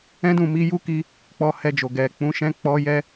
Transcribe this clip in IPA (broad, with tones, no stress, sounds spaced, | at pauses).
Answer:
ɛ̃˦ d ũ˦˨ m i˧ j u˦ k i˦ | k͡p ɔ˧ h ɛ˧ d͡ʒ o˨ ɡ ɛ˨ k͡p ũ˨˦ ʃ ɛ̃˦ k͡p ɔ˧ j ɛ˦